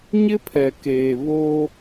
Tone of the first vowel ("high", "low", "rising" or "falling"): high